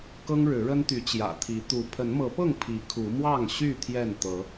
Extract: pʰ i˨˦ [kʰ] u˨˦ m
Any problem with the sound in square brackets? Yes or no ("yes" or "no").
no